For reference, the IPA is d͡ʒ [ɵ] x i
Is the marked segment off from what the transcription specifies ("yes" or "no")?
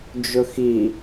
no